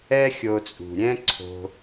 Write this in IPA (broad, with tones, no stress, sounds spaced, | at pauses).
ɛ˦ xʲ o˧ t͡sʼ ṳ˨ ɾʲ ɛ̃˦ ǀʰ o̤˧